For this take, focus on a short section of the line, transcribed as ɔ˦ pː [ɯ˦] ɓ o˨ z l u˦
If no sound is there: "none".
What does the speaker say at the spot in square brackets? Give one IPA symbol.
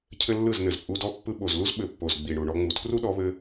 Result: ɯ˧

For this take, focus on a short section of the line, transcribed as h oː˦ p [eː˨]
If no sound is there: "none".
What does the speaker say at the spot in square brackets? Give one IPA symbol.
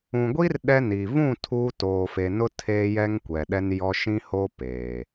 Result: eː˨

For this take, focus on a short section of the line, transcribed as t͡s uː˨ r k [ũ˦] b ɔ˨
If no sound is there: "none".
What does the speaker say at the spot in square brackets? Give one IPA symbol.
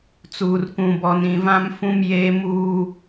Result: ũ˨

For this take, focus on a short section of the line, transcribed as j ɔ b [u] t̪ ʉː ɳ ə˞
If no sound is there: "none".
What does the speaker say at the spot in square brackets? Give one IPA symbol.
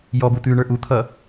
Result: u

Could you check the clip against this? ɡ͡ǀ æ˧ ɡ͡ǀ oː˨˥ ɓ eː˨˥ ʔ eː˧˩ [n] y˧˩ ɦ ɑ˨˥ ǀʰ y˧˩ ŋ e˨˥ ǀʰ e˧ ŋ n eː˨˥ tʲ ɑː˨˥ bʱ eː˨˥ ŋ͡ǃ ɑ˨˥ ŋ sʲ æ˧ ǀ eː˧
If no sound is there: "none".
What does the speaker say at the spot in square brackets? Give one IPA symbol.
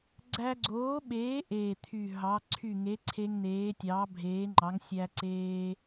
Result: t̪ʰ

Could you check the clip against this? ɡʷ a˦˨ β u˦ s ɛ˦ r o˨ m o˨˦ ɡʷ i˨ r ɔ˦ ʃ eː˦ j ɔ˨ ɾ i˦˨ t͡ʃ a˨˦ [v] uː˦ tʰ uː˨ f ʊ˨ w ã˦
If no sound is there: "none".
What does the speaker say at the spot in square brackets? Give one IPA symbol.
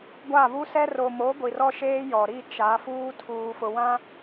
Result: f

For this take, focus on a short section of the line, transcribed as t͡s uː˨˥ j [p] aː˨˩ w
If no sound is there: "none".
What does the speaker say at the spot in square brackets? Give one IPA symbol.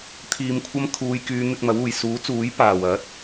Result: p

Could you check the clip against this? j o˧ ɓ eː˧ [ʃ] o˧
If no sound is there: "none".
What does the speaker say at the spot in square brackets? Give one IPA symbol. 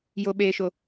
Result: ʃ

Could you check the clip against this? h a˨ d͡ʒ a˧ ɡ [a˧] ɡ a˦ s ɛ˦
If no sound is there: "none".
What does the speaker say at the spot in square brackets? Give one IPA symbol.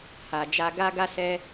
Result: a˦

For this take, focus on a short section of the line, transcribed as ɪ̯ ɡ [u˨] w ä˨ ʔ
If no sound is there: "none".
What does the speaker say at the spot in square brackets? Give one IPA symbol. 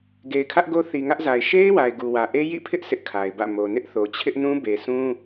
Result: u˨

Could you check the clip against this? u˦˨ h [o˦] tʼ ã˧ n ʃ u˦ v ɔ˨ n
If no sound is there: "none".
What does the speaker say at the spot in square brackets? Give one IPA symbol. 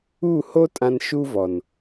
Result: o˦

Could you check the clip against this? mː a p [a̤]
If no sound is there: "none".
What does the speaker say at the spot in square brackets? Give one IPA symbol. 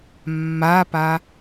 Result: a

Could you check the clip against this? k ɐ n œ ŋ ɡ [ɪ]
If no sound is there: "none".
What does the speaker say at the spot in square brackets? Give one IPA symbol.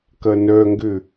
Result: ʏ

